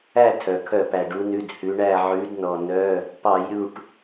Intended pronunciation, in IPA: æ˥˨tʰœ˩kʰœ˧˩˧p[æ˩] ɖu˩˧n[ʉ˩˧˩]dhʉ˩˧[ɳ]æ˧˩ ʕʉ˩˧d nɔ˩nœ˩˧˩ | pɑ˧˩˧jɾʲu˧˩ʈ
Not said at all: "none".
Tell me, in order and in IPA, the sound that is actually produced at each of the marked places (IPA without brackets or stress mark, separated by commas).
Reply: æ˩, ʉ˩˧˩, ɳ